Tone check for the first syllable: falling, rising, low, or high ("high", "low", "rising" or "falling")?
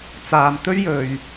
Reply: low